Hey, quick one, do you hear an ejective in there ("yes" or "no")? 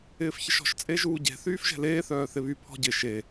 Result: yes